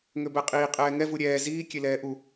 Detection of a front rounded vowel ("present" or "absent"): present